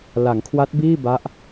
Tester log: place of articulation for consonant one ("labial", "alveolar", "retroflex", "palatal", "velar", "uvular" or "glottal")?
alveolar